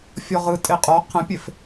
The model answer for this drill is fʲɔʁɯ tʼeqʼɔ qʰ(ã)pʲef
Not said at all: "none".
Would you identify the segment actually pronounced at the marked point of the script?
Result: ə̃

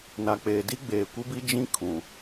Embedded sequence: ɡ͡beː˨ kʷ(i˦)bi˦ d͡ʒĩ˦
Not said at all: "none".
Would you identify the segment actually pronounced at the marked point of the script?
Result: i˦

